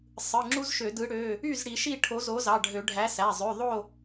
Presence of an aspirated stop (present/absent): present